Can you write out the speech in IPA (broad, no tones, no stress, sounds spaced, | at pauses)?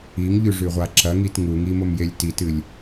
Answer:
i ŋ ʎ ʉ ʐ ʉ ʁʷ a ǁ ɐ ŋ i t ŋ u ŋ i m o m j e lʲ t i t ɨ lʲ